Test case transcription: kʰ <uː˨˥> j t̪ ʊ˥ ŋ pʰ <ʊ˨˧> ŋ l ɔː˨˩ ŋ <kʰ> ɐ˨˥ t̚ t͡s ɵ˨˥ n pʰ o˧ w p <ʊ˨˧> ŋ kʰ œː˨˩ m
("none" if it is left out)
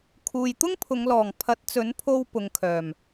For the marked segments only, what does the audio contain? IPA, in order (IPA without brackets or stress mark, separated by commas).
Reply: uː˨, ʊ˨˧, pʰ, ʊ˨˧